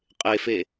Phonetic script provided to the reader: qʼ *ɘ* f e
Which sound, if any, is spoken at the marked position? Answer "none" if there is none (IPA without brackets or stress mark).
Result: e